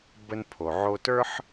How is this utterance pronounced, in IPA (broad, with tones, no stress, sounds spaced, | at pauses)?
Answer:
b ə˧ n pʰ o˩ ʕ o˧ t ə˞˥ ħ